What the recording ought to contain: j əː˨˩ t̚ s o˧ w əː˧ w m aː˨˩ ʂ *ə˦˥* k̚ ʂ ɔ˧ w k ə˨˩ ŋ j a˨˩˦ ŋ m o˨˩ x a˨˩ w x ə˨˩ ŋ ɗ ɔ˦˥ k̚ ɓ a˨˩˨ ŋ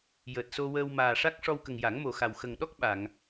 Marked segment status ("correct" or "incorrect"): incorrect